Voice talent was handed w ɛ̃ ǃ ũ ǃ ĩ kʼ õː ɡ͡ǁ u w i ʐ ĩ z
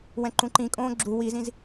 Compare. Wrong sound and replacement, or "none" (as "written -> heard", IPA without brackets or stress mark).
ʐ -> z